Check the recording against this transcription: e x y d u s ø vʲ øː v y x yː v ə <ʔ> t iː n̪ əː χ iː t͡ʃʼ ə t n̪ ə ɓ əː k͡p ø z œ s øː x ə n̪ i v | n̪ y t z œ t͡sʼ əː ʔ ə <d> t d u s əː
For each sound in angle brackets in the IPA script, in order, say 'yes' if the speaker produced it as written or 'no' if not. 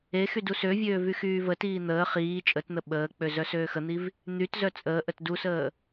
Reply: no, no

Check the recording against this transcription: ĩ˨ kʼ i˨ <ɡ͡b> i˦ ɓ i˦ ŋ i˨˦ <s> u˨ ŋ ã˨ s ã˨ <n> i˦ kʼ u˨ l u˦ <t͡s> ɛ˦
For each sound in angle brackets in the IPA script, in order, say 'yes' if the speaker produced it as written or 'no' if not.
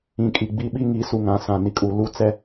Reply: yes, yes, yes, yes

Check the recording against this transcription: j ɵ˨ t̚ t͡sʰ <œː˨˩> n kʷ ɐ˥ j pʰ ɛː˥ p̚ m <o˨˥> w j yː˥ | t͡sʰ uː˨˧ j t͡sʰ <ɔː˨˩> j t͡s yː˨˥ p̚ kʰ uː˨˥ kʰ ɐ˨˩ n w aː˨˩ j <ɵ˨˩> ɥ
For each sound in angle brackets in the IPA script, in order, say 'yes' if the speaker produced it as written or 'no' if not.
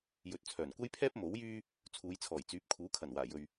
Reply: yes, yes, yes, no

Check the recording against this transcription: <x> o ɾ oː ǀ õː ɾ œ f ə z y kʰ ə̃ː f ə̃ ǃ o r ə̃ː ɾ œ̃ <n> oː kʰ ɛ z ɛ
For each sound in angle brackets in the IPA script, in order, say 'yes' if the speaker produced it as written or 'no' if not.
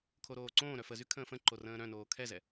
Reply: no, yes

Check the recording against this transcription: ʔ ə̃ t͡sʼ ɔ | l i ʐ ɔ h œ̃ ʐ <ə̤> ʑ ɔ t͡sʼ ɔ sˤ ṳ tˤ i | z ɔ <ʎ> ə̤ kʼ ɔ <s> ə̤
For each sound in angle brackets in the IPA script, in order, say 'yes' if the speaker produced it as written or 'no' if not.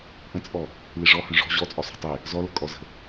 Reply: no, no, no

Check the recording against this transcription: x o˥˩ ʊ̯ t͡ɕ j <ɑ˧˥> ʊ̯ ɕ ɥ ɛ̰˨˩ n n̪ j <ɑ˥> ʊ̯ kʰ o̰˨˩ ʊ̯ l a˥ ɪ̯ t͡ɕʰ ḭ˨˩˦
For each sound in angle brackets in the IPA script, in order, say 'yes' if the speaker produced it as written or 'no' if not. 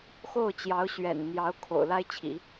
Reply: yes, no

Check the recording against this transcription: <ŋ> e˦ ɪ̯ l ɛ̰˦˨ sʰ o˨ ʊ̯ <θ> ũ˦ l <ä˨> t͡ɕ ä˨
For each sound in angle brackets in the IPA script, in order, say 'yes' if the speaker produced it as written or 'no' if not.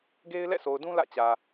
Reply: no, no, no

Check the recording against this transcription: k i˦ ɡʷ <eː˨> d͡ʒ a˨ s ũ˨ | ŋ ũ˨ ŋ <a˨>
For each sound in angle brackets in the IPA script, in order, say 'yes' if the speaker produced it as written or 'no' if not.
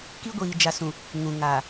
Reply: no, yes

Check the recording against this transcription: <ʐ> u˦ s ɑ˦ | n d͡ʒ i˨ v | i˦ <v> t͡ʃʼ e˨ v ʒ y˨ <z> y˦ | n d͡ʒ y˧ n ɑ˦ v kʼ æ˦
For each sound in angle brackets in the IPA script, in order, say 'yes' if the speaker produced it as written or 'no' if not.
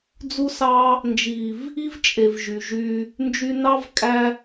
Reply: no, yes, no

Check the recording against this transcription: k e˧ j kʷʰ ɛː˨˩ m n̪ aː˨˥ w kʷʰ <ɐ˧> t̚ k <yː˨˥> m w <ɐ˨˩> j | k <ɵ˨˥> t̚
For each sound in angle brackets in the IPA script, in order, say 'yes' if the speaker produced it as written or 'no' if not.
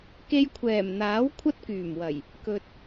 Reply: no, no, yes, no

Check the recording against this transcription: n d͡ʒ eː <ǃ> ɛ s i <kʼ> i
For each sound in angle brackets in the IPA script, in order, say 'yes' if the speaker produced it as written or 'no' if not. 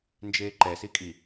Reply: yes, yes

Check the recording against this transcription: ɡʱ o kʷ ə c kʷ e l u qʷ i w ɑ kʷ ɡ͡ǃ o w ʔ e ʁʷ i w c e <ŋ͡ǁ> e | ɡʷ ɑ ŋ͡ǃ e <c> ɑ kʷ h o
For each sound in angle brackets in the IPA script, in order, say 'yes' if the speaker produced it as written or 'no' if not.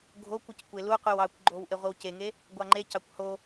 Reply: no, yes

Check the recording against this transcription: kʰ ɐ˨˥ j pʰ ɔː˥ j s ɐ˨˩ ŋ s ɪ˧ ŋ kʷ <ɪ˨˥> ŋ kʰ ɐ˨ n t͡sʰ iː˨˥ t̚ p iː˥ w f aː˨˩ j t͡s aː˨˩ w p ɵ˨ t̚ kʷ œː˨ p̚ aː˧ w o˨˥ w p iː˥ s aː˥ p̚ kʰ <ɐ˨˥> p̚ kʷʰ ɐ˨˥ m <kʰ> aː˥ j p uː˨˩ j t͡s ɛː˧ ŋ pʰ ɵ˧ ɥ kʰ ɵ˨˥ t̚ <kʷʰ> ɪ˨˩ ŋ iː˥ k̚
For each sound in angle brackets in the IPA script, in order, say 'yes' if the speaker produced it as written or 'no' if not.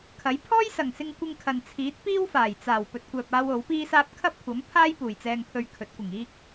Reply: no, no, no, no

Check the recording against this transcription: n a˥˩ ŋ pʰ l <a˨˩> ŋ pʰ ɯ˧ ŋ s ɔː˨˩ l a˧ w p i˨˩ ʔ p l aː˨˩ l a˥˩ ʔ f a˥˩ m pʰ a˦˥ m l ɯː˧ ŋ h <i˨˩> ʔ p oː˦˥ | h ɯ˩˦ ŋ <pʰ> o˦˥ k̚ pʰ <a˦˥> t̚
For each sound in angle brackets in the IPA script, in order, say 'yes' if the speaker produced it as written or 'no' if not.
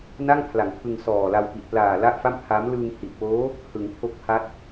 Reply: no, yes, yes, yes

